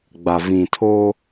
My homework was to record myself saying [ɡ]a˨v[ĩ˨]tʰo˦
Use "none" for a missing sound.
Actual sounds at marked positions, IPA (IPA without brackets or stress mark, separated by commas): ɡ͡b, ĩ˨